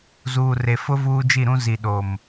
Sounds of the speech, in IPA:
z uː˨ r e˨ f ʊ˦ v uː˦ d͡ʒ i˦˨ ɾ ũ˦ z i˨ ɗ o˨ m

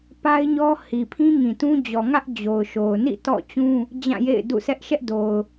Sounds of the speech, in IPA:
p a˦ ɪ̯ ɲ ɔ˦ h i˨ pʰ ĩ˦ ŋ ĩ˨ t ũ˦ d͡ʑ ɔ˨ ŋ ä˦ ʔ d͡ʑ o˨ ʊ̯ ʃ o˨ ʊ̯ n ḭ˦˨ t ɔ̰˦˨ t͡ɕ ũ˦ | d͡ʑ ã˦˨ j ḛ˦˨ ɪ̯ d ṵ˦˨ sʰ ɛ˦ ʔ ʃ ɛ˦ ʔ d o˨ ʊ̯

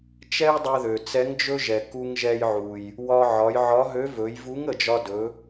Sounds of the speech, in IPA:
t͡ʃ ɛ˥ j dˤ ɛ˧ ð ø˩ t͡s ɛ˧˥ ŋ d͡ʒ ɵ˥ ʒ ɛ˩ k u˧ ŋ ʒ ɛ˧ j ʕ u˩ j | w ɒ˧ ʕ ɒ˩˧ j ʕ ɒ˧˥ ɦ ø˧˥ v ɵ˩˧ j v u˧˥ ŋ ə˩ d͡ʒ ɒ˧ d ɵ˩˧

